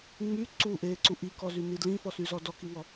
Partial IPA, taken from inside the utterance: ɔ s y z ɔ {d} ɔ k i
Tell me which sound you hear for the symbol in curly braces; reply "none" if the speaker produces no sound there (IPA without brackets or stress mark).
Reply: d